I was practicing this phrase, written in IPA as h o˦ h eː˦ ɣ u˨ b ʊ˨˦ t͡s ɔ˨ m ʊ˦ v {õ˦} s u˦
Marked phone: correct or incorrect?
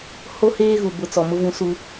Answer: incorrect